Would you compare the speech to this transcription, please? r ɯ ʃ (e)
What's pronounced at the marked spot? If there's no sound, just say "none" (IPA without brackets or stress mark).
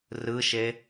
e